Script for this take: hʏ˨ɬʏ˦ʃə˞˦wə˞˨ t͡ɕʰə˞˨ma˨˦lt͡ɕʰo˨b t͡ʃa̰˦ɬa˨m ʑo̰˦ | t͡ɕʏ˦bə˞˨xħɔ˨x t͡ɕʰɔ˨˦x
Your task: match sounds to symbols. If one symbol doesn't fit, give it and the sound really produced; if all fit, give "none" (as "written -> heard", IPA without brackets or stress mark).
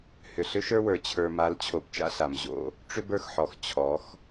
t͡ɕ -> ʈ͡ʂ